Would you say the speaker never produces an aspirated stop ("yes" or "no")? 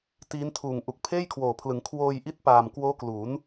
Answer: no